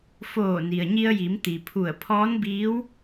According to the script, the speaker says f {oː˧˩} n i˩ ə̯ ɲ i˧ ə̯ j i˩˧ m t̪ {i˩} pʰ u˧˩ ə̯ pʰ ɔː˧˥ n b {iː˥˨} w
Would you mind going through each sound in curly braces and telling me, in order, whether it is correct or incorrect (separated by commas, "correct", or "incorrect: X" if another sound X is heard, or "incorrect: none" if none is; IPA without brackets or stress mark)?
correct, correct, incorrect: iː˧˥